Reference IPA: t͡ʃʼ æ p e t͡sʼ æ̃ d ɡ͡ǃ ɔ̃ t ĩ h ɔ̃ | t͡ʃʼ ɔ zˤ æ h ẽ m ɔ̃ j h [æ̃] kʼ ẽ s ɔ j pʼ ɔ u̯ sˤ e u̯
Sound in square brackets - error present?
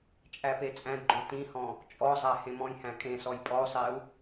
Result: no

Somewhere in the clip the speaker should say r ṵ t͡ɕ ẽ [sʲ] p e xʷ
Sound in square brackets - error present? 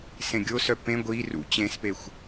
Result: yes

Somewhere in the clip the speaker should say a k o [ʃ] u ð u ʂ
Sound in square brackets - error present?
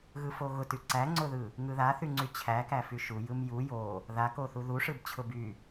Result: yes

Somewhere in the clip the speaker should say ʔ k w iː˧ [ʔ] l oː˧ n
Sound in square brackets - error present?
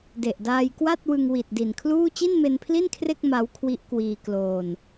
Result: yes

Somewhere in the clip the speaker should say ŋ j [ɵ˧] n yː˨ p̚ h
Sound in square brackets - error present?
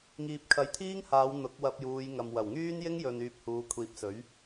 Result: yes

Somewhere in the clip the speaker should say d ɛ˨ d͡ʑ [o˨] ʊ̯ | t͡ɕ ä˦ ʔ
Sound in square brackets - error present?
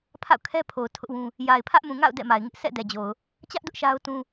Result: no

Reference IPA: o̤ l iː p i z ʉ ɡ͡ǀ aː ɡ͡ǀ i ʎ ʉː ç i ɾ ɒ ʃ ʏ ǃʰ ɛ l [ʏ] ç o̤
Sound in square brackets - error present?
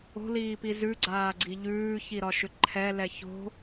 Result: yes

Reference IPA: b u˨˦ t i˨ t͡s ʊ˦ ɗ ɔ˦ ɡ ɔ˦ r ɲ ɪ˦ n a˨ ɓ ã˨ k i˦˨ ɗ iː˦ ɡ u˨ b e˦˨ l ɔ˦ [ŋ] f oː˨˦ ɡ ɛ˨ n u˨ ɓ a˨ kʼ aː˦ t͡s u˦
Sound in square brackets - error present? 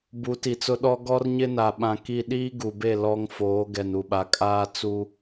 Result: no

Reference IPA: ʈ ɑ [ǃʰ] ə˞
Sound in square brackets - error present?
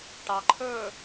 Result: no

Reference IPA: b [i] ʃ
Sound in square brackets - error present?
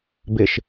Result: yes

